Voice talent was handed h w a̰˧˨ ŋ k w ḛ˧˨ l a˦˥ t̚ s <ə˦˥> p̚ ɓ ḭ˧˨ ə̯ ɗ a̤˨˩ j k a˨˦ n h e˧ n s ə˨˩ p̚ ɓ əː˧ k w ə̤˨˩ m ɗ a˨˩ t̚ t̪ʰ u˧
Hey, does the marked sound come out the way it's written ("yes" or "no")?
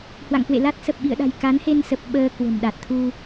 no